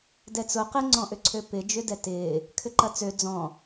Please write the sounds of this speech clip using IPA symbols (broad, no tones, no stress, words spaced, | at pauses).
dɛt͡sʊ qɪŋ͡ǀɔ̃ʔʏǀʰø pɪ d͡ʒʏdɛtɪː | kʰʏǃɐt͡sø d͡zɔ̃